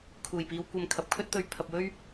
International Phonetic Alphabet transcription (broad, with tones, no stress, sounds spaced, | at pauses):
kʰ uː˨˩ j p iː˨˧ w kʷ ɐ˧ m kʰ ɐ˨ p̚ kʰ ɵ˥ t̚ t̪ ɵ˨˧ ɥ pʰ ɐ˨ p̚ w ɵ˥ ɥ